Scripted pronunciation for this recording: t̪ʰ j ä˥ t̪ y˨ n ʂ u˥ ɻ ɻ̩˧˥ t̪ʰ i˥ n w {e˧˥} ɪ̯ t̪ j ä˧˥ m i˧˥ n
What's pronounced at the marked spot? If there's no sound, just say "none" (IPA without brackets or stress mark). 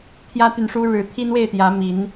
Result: e˥˩